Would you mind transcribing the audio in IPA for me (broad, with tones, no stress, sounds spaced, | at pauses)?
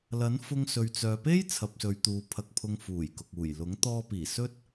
l ɐ˨˥ n f ʊ˧ ŋ s ɵ˨ ɥ t͡s œː˨ p e˥ j t͡sʰ ɐ˨ p̚ s ɵ˨˧ ɥ t̪ uː˨ pʰ ɐ˧ k̚ pʰ ʊ˧ ŋ f uː˨˩ j k ʊ˨ k̚ uː˨˩ j l ʊ˨˥ ŋ t̪ ɔː˧ p iː˨˩ s ɵ˥ t̚